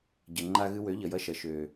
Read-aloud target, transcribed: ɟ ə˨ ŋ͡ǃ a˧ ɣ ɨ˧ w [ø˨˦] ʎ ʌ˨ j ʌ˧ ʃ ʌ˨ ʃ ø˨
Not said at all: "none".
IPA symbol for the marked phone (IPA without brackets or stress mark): ø˨˦